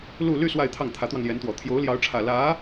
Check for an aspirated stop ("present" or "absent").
present